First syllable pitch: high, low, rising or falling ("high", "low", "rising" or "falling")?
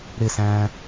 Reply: falling